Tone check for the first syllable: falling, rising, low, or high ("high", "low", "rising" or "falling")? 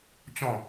falling